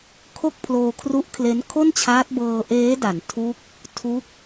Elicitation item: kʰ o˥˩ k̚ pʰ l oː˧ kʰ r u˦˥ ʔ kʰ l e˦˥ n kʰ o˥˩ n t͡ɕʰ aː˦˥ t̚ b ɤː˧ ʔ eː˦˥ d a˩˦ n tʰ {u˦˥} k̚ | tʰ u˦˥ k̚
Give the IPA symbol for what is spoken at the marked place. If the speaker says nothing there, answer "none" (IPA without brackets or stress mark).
u˦˥